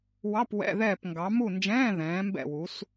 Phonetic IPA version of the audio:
w ɑ˧˥˧ p w ɛ̰˧˥˧ ð ɛː˦˨ p ŋ ɡ ɑ˨˦ m u˦˨ n d͡ʒ ɛ̃ː˧˥˧ ð ɛ̃ː˨˦ m b ɛ̰˦˨ w u˨˦ s

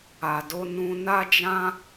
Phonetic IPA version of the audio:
a˨ d o˧ n ũ˧ n a˦ d͡ʒ ã˦

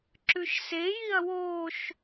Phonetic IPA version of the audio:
ǁ ʉ ʃ s e j i ɐ̯ w o ʃ

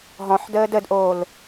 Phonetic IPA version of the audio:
ɦ ɔ̃ ħ d əː d ə d ʔ oː l

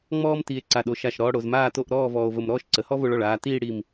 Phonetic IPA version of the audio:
ŋ͡m ɔː˥ m t iː˧ e̯ ǀ a˧˩ ɗ o˧ ʃ a˧˩ ʃ ɾ ɔː˧ ɽ o˩˧ z m aː˥˧ t o˥˧ ʔ ɾ ɔː˥˧ v ɔː˧ o̯ v ə˧ m ɾ ɔː˥ ʃ ǀ ə˩˧ h ɔ˥ v o˧ ɭ ɔ˧˩ ɭ aː˧ t iː˥˧ ɽ i˧˩ m

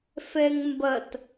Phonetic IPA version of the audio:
f ɛ ŋ m b ɐ t

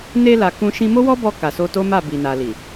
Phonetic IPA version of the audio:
n e˧ l a˨ k ũ˧ ʃ ĩ˧ m o˦ w ɔ˦ b ɔ˧ k a˨ s o˧ t o˦ m a˦˨ b i˨ n a˨ l i˨

